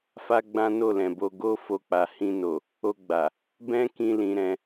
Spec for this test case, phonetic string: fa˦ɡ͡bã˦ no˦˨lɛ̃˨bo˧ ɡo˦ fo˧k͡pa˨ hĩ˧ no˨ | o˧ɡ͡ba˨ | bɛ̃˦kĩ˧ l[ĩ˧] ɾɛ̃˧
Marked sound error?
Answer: no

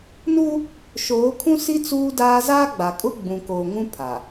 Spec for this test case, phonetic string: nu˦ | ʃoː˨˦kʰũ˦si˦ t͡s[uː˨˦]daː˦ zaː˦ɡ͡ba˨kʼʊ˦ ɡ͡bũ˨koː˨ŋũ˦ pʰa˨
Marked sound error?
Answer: yes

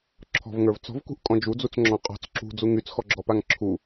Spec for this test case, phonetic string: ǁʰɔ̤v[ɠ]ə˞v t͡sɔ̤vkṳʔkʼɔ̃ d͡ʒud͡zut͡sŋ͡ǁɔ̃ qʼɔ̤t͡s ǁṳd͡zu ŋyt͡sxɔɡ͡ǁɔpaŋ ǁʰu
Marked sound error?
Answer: yes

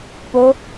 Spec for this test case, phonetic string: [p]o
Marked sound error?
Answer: no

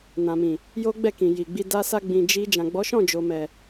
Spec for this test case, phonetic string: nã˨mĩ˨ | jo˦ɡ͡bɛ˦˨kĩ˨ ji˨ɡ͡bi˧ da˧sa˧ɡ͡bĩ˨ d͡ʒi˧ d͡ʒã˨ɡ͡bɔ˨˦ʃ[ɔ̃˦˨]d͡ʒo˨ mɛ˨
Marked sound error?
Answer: no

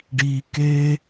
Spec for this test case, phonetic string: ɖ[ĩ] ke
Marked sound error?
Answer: yes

